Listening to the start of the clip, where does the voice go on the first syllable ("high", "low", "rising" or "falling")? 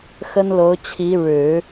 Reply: high